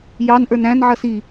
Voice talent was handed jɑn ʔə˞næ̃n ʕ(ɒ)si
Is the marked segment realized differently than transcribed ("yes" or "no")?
yes